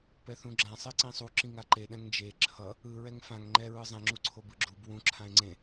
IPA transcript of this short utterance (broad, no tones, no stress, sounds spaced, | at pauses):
p ɛ θ ũ ɡ͡ǁ ã sˤ e ǀ ĩ sˤ u ǁ ĩ ŋ a ǃ e ɗ ɛ̃ ŋ d͡ʒ e ǁʰ ʌ | ɯ ɹ ɛ ŋ f ã ŋ ŋ͡ǃ ɛ ɹ ɯ zˤ ɛ̃ ŋ͡ǁ u ǀʰ o b ɯ ɡ͡ǁ u b w ũ ǁʰ ã e̯ ŋ͡ǀ ẽ